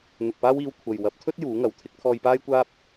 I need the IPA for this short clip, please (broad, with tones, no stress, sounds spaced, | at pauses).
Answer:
n̪ ʊ˨ k̚ p aː˥ w iː˧ w kʷʰ ɐ˨ j w ɐ˨˥ p̚ t̪ʰ ɵ˥ t̚ j uː˨˥ ŋ ɐ˨˥ w t̪ʰ ɪ˨˥ k̚ t̪ʰ ɔː˧ j p aː˥ j kʷ aː˥ p̚